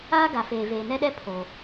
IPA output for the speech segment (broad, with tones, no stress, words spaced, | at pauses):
aː˦ ɡa˨feː˨ veː˨nɛ˦ɗɛ˦ pʰo˨